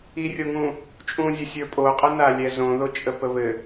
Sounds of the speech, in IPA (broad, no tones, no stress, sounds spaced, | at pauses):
i rʲ o ŋ ũ | t͡ʃʼ ũ zʲ ə sʲ ə˞ pʼ o qʼ ə n a lʲ ɛ z õ ð o t͡ʃʼ ə p ə β ɘ